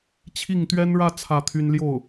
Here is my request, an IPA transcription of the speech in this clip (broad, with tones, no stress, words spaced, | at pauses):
t͡ɕʰi˥˩ŋ t̪ɥɛ˥nɻä˥˧ t͡sʰä˥˩t̪ʰy˥n ljo˥˩ʊ̯